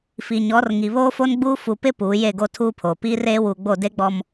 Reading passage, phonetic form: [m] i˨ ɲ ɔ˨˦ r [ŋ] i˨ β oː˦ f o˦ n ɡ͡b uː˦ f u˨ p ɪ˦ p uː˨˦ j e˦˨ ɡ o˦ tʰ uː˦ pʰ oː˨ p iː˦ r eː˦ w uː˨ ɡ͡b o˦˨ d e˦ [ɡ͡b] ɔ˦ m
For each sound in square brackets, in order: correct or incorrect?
incorrect: f, correct, correct

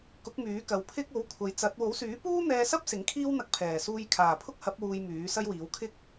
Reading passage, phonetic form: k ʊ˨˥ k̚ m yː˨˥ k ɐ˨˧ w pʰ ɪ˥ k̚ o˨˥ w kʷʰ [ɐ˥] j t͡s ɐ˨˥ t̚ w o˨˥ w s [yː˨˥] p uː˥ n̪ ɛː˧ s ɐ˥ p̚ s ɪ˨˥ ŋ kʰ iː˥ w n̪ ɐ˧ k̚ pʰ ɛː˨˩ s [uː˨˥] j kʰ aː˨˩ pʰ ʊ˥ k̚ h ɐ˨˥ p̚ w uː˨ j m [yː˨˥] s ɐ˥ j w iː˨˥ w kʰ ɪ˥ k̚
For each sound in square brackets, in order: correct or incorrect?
incorrect: ɐ˨, correct, incorrect: uː˧, correct

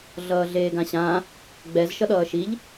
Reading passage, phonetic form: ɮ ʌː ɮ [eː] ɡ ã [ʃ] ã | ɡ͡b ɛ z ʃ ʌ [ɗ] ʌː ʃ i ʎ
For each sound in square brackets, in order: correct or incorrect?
correct, incorrect: ɕ, correct

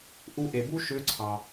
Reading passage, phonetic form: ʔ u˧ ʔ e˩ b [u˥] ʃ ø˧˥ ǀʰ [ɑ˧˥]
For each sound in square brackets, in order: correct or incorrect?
correct, incorrect: ɑ˩

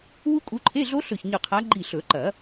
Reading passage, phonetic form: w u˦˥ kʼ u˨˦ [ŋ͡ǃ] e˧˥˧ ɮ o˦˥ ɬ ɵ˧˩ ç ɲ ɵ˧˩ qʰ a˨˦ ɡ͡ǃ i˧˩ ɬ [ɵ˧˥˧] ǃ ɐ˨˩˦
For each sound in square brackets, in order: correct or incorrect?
incorrect: ǃʰ, incorrect: ɵ˨˩˦

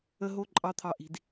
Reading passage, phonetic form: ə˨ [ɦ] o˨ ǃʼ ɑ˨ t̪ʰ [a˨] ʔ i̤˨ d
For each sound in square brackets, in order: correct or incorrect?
correct, incorrect: ɑ˨

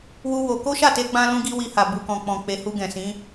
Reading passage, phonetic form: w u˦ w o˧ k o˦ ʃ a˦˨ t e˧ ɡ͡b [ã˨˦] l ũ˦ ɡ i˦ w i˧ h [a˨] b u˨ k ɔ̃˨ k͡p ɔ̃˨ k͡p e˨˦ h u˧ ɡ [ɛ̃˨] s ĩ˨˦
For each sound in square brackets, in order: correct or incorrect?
incorrect: ã˧, correct, correct

